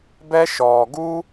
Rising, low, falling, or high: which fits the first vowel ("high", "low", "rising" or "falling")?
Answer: high